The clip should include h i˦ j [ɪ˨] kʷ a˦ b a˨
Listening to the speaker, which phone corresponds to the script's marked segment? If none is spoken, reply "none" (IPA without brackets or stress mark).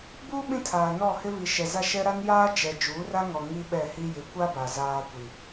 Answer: ɪ˨˦